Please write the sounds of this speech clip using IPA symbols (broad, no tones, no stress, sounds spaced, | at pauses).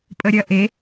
pʼ ə ɾʲ ɐ ʔ e